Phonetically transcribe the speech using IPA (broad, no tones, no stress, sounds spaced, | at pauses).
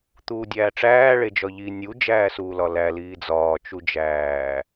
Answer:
t̪ uː dʲ æː ʈ͡ʂ æː ɭ e d͡ʒ ɒ ʎ i nʲ u d͡ʒ æː s uː l ɒ l æ l iː d͡z ɒː t͡ʃ u d͡ʒ æː